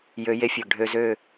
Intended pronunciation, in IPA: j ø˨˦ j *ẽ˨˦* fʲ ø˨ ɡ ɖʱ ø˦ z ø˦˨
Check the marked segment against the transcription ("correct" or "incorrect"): incorrect